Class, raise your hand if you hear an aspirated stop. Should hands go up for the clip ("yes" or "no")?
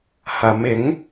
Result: no